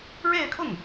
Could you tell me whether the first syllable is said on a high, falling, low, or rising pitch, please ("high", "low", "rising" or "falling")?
falling